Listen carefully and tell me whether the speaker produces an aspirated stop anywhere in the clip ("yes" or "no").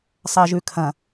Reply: yes